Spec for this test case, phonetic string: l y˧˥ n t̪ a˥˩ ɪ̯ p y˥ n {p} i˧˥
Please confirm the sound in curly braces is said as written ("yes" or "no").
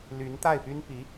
yes